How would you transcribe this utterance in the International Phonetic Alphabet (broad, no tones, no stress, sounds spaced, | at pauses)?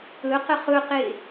ɵ q ə χ ɵ q e